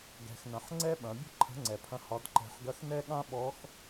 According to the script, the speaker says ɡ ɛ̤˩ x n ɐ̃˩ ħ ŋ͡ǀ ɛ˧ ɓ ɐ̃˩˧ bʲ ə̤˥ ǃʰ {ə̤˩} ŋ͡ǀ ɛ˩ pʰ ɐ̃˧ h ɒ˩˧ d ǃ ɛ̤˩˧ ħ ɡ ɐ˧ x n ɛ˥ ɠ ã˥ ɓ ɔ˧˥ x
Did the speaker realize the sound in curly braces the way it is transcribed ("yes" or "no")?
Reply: no